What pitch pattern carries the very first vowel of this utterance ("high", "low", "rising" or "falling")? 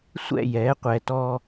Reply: falling